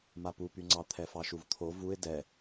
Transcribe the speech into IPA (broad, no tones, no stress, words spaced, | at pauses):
mapupyŋ͡ǀɑ t̪ʰɛfɑʃuvt̪ʰo vuɪ̯ dɛ